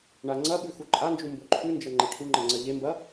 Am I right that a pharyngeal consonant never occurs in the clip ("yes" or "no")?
yes